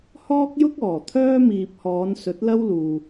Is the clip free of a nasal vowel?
yes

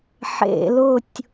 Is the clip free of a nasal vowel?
yes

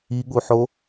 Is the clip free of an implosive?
no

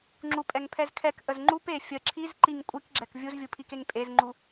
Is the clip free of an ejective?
no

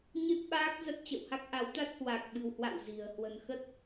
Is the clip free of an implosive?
no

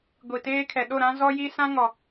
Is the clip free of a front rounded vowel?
yes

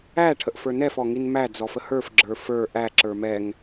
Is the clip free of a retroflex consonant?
no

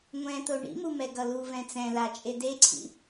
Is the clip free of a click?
no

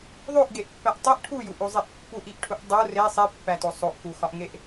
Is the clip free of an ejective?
yes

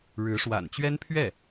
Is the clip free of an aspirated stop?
no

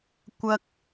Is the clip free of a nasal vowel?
yes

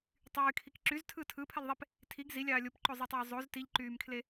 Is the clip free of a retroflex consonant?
yes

